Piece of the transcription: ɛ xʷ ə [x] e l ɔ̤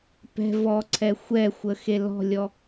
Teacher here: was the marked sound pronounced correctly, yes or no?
yes